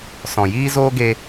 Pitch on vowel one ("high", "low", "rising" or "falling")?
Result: low